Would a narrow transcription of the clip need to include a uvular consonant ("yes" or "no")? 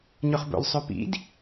yes